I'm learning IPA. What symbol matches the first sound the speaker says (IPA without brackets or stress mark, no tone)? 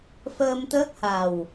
f